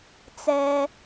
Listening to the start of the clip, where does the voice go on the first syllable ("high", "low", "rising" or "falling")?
low